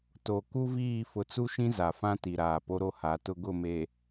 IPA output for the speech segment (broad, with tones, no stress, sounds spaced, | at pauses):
t o˨ k u˦ v iː˦˨ f ʊ˨ t͡s u˦ ʃ ĩ˦ z a˨ f ã˦ t i˨ ɾ aː˨ p o˦ ɾ o˦ h a˨˦ t ʊ˦ ɡ ʊ˦˨ m e˨